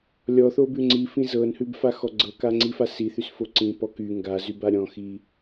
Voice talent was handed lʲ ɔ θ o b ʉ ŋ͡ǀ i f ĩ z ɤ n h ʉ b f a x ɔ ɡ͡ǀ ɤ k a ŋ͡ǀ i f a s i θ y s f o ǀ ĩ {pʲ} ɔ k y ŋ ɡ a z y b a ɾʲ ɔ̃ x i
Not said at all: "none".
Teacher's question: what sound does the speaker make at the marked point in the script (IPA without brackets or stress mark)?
p